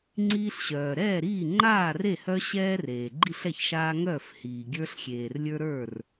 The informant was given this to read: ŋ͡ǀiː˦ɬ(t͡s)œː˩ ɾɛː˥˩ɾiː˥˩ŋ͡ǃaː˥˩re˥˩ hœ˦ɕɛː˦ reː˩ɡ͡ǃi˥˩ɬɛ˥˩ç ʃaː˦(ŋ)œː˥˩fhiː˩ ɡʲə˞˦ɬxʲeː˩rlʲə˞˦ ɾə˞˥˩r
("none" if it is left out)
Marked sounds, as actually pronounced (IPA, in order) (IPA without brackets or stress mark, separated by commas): ɕ, ŋ